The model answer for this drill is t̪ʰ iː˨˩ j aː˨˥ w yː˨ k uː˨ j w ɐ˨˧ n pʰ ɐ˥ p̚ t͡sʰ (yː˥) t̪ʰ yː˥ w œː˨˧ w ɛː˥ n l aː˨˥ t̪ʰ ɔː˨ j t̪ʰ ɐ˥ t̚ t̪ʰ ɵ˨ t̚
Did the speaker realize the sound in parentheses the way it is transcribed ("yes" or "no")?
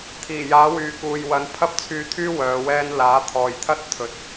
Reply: no